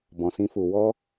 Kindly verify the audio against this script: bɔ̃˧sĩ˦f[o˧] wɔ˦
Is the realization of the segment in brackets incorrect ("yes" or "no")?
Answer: yes